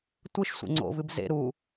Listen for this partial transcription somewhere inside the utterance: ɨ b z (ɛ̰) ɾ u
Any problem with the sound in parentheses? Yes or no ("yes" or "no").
yes